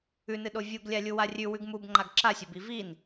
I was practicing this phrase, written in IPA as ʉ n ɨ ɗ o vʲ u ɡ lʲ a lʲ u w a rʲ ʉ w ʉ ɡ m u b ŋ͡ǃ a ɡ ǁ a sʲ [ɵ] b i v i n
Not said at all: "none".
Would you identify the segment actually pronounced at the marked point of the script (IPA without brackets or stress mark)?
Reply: ɵ